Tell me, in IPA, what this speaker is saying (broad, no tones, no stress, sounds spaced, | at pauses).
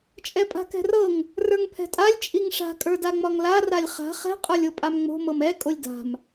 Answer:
t͡ʃʼ ɛ pʼ a̤ k ɛ̤ r ɤ ŋ | r ə˞ ŋ pʰ ɛ̤ tʼ a lʲ t͡ʃʼ i ŋ ʂ a̤ kʼ ə˞ d a ŋ͡m ɒ ŋ l a r a lʲ χ a̤ χ ɛ̤ qʼ ə˞ lʲ o pʼ a m ŋ͡m o̤ m ɤ m ɛ kʼ o lʲ d a̤ m